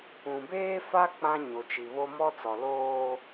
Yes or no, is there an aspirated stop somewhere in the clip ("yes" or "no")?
no